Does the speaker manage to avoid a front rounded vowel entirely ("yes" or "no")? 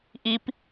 yes